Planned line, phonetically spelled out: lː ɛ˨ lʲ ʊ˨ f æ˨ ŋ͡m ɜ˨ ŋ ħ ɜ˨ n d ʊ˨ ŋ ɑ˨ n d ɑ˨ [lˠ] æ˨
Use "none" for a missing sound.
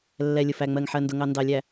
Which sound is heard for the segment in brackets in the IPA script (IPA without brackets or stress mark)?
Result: lʲ